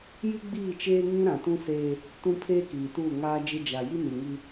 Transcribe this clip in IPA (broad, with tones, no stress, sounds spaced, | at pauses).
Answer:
j i˦ ɡ͡b iː˦˨ t͡ʃ eː˦ ŋ ĩ˦ ɾ ã˨ t ũ˦ s eː˦ | t ũ˦ pʰ eː˦ k iː˨ t u˦˨ ŋ aː˦ d͡ʒ ɪ˦ d͡ʒ a˨ j i˦ n i˨ ŋ i˦